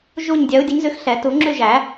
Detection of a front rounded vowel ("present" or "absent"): present